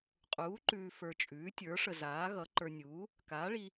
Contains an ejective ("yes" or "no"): yes